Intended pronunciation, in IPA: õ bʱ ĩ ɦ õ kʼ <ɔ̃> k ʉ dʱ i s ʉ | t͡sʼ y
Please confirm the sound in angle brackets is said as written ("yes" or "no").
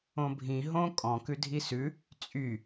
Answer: yes